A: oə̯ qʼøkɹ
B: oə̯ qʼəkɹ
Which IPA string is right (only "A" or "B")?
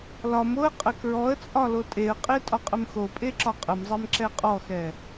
B